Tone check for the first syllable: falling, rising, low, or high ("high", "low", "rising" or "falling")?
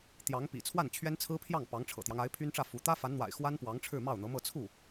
rising